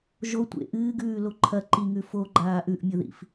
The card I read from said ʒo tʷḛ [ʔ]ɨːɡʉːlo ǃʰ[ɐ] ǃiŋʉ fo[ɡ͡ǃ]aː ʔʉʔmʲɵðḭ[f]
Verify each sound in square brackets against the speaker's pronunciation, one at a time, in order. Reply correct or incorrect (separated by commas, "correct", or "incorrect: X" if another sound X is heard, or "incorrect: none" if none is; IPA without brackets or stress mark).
correct, correct, correct, correct